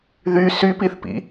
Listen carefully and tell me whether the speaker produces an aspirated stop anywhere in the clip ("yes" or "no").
no